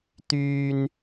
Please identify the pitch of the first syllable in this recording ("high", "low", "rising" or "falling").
high